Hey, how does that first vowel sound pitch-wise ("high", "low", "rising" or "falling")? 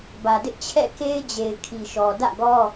low